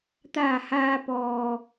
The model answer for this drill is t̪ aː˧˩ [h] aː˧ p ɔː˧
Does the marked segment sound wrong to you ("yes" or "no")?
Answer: no